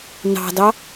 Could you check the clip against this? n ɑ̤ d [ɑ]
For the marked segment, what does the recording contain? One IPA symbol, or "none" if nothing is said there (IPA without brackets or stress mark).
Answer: ɑ